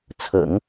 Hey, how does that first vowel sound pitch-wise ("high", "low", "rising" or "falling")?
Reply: low